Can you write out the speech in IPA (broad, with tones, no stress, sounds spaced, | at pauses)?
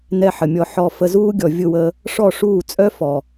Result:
n ɛ˧ ħ ə˨ mʲ ɔ˧ ħ ɔ˧ f ə˧ z uː˦ ɡʲ ɔ˨ vʲ ʊ˦˨ w əː˧ | ʂ ɔ˦˨ ʂ uː˦˨ t͡sʼ œ˦ f ɔ˨